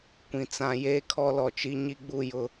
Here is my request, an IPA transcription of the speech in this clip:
kʷĩ˨t͡sã˨˦ jeː˦kʰɔ˦lɔ˨ t͡ʃi˦ɲi˦ɡ͡bu˦˨ jʊ˦˨

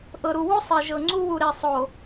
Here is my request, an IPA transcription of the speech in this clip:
ʔɤ˨ɾu˨wu˦ sˤe˨ʒɤ˨ŋ͡ǀu˦wu˨ ɾe˨sˤo˨

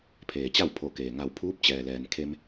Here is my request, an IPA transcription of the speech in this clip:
pʰeː˩t͡ɕa˥˨wpʰo˧˩ keː˩ ŋa˧˩wpʰuː˧˥p̚ t͡ɕɛː˩lɛː˩nkʰe˧m

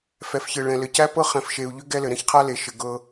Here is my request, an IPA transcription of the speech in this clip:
fɛ˨fçɘ˨ɭɛ̃˨ lɘ˨cæ˦ pɤ˦ χɛ̃˨fʃe˨u̯ʎʏ˦ ɡɛ˦lɘ˨ ɾɛ̃˦çqʰa˦le˨ʃɘ˨ ɡɤ˦

